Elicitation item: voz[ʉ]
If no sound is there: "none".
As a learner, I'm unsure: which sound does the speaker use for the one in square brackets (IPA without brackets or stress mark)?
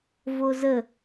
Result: ə